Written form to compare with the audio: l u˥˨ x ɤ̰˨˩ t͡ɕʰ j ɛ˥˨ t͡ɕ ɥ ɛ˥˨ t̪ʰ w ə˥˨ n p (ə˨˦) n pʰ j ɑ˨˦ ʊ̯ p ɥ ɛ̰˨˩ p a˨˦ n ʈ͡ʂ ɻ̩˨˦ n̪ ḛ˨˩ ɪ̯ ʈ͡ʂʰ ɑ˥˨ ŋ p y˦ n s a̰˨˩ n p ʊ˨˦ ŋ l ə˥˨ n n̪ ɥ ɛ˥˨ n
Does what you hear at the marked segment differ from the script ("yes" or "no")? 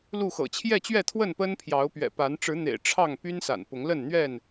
yes